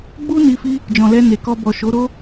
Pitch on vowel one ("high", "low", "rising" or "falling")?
high